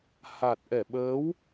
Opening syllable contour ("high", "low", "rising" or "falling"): low